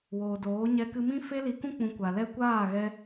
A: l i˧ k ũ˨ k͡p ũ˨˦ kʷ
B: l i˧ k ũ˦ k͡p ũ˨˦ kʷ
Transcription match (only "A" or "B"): B